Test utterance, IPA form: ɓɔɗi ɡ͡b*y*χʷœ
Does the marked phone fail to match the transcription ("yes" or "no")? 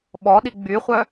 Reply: no